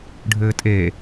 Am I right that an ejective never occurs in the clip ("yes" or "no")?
no